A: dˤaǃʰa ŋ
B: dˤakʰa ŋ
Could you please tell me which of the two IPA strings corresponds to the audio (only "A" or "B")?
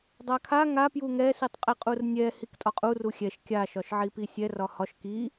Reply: B